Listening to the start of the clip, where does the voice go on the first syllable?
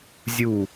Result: falling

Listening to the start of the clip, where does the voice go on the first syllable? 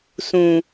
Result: low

